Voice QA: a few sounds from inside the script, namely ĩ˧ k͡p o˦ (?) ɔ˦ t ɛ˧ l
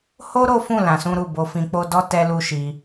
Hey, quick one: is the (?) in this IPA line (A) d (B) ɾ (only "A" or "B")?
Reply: A